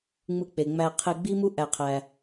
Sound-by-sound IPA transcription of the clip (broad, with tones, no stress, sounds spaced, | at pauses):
ŋ͡m ɯ˧ k͡p e˨ ŋ͡m æ˧ qʰ e˧ ɡ͡b i˦ m u˦ ʔ æ˧ qʰ æ˧